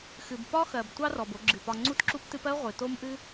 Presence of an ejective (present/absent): absent